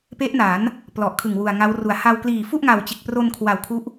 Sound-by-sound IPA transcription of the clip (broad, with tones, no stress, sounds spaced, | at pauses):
p e˦˥ ʔ n aː˩˦ n | p l ɔ˨˩ ʔ kʰ ɯ˨˩ ŋ w u˨˩ a̯ ŋ a˦˥ w r u˨˩ a̯ h a˧ w k l iː˨˩ f u˥˩ ʔ ŋ a˨˩ w t͡ɕ e˨˩ k̚ p r o˧ n kʰ w a˨˩ w kʰ u˦˥ ʔ